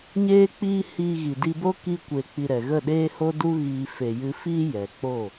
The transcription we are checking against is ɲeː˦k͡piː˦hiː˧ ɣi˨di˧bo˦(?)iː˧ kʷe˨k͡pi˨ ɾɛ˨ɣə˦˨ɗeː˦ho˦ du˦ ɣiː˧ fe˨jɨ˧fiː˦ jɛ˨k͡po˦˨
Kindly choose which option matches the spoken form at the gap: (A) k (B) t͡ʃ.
A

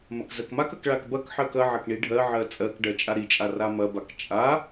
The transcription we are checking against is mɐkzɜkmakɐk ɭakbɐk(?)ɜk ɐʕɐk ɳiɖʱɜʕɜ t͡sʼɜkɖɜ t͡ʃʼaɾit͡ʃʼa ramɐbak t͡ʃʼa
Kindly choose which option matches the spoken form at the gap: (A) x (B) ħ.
B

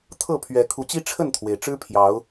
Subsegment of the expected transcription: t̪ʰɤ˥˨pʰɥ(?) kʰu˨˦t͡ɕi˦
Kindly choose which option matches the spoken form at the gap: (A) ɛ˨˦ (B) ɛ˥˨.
A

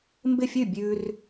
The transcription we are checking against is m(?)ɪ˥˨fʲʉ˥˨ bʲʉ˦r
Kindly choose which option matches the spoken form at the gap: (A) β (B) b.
B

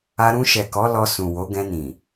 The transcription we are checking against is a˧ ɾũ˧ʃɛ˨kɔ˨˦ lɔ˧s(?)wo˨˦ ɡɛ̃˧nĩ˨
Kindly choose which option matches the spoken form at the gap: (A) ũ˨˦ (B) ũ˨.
B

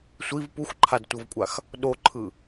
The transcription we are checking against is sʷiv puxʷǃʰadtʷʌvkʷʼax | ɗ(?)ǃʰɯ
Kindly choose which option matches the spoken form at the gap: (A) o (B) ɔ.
A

